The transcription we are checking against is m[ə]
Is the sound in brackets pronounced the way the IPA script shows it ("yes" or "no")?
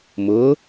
no